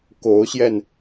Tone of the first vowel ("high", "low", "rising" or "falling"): rising